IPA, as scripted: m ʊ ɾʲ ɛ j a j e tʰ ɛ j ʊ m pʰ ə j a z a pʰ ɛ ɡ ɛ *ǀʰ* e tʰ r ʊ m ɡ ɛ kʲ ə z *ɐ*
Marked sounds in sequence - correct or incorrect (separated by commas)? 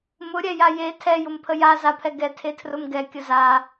incorrect, incorrect